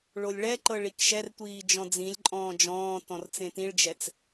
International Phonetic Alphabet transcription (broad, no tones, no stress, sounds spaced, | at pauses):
ɭ o lʲ ɭ ɛ ǃ ɤ ɭ i k ʃ ɛ r tʷ iː d͡ʒ ɔ̃ d͡z ĩ lʲ ǃʼ ɔ̃ː d͡ʒ ɔ̃ː t ɔ̃ r t͡s ẽ t ĩ ɭ d͡ʒ ɛ t͡s